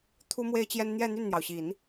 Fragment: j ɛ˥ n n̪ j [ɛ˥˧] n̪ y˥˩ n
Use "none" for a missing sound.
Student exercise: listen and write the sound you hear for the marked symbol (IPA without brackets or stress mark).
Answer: ɛ˥˧